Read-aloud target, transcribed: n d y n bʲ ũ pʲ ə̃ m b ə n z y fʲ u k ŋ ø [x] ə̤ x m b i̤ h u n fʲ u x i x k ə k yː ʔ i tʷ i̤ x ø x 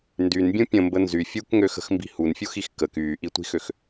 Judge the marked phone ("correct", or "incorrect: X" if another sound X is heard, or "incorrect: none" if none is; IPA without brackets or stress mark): correct